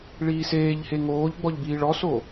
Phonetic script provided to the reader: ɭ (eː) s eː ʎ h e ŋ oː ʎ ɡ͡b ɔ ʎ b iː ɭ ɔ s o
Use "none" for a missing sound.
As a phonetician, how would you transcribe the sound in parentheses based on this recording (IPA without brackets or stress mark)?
iː